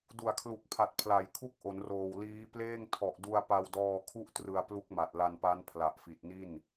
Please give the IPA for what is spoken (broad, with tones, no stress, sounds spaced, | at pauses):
d u˨˩ a̯ kʰ l u˨˩ k̚ pʰ a˨˩ t̚ pʰ l a˩˦ j kʰ u˥˩ k̚ ʔ o˩˦ n r oː˨˩ w l iː˦˥ p l eː˥˩ ŋ tʰ ɔ˨˩ ʔ d u˧ a̯ p a˧ w d ɔː˧ kʰ u˥˩ ʔ t r ɯ˧ a̯ p l u˦˥ k̚ m a˨˩ t̚ l a˧ n p a˦˥ n pʰ l a˨˩ ʔ f i˨˩ t̚ n i˥˩ n